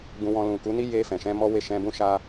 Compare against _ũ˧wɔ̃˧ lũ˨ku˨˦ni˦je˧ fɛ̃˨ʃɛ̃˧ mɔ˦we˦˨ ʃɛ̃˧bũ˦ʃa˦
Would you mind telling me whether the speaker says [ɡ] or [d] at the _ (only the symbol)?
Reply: ɡ